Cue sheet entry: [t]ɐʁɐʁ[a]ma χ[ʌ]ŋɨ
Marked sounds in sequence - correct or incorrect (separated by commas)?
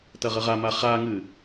correct, correct, incorrect